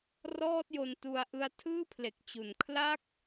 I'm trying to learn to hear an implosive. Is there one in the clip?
no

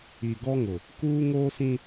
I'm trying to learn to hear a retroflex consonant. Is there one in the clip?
no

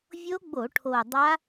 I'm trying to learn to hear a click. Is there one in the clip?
no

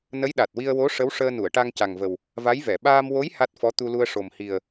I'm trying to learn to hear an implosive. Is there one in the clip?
yes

